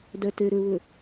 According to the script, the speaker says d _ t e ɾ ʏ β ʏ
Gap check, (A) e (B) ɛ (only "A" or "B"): B